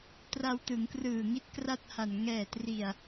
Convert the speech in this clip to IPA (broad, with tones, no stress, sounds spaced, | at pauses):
t r a˧ w t ɯ˩˦ ŋ k r ɯː˨˩ ŋ i˦˥ t̚ k r a˥˩ t̚ h a˨˩ n ŋ ɛː˨˩ t r i˨˩ a̯